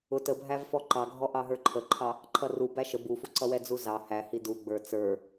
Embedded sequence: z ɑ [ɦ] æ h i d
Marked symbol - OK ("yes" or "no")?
no